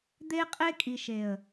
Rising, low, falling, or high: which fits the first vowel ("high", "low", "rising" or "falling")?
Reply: high